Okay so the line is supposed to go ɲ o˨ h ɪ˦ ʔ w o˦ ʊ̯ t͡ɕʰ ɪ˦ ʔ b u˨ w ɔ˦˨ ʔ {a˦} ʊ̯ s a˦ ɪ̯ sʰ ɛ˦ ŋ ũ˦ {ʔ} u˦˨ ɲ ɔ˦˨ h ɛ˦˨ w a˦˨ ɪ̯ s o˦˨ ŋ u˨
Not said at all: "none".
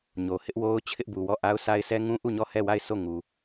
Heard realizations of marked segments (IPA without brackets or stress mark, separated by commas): a˦, ʔ